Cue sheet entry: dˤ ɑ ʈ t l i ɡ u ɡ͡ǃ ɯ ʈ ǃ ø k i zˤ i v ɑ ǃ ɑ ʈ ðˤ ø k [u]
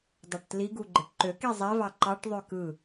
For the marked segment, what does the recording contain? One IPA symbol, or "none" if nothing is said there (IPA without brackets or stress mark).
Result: ɯ